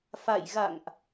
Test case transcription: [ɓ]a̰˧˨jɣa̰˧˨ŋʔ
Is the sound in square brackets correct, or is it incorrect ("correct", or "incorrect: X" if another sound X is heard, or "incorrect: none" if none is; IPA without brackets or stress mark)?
incorrect: f